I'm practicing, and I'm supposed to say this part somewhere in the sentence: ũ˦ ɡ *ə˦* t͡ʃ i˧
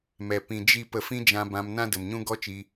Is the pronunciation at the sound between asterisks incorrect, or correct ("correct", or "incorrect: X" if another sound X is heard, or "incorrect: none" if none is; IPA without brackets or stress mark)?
incorrect: ɔ˦